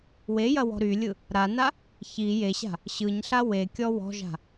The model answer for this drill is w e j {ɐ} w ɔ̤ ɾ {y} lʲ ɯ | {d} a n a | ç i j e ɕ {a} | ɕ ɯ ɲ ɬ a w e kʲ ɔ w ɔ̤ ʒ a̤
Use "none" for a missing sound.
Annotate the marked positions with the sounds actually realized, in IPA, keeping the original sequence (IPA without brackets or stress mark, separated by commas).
ɐ, y, ɾ, a̤